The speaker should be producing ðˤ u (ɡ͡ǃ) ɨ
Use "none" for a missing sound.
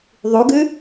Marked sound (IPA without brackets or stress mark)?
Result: ɡ